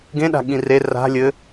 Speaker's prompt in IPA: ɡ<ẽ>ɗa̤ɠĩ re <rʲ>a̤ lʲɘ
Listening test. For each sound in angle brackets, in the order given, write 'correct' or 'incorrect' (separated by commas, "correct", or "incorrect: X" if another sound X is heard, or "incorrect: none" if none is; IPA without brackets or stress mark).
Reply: correct, incorrect: r